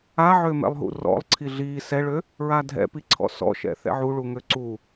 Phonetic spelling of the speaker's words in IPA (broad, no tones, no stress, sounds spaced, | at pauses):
a ʕ ø m ɛ̰ lˠ ɦ ṵ r ɔ̰ lˠ ǀʰ i ɮ i s ɛ ɭ ø | ɹ a dʱ ɛ̰ p i ǀʰ ɔ̰ s ɔ̰ ʃ ɛ̰ θ ɛ̰ ʕ u ɭ u ŋ ø ǀ u